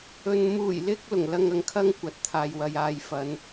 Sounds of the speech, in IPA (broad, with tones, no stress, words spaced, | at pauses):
ɵ˨n muː˨˩jlɪ˧k̚ lʊ˨˩ŋlɐ˧ŋ ɐ˨ŋkʰɐ˥ŋ kʷɐ˨˥t̚t̪ʰaː˨jwɐ˨jaː˧j fɐ˨˧n